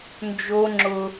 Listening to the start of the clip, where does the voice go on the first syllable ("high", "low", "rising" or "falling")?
high